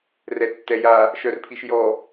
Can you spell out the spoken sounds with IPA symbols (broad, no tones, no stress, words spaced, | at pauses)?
rɛtːɛja | ʃœrpʰiʃjɔ